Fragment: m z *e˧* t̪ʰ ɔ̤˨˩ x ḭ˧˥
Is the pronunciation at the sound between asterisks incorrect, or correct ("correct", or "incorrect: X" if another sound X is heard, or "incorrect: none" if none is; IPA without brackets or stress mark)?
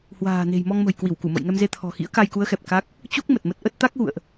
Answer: correct